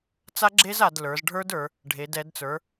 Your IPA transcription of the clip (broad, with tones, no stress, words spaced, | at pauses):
t͡sa˦˥ɡ͡ǁe˦˥z a˩˧dlə˞˩˧zɖʱə˞˦˥də˞˩˧ | ɖʱe˩˧d ɛ˩˧dt͡sə˞˩˧